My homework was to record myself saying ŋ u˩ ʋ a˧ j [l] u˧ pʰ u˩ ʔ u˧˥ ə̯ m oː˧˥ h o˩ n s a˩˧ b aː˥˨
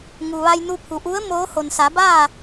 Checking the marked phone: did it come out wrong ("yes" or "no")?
yes